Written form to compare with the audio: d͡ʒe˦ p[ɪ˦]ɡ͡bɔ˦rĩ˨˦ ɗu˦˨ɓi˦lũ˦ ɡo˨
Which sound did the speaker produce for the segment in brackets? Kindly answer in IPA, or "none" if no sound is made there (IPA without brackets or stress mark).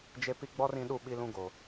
i˦